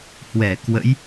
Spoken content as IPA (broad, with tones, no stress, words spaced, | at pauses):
hwɛ˧˩kwə̰˧˥j